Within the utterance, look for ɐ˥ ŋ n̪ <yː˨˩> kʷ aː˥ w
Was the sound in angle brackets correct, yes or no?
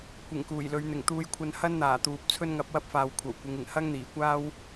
no